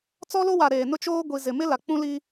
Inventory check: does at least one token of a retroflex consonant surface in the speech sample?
no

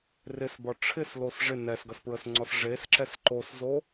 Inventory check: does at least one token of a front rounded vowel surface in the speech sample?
no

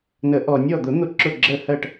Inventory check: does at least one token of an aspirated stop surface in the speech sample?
no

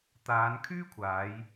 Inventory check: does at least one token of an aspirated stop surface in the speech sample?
yes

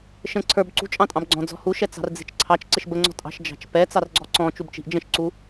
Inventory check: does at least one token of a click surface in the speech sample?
yes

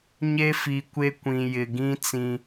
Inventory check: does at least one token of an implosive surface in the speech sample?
no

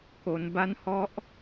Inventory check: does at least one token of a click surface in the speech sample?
no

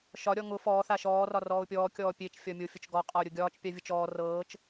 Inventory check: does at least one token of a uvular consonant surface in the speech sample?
yes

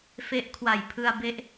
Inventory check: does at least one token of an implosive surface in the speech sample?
no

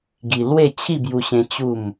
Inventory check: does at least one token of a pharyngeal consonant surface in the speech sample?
no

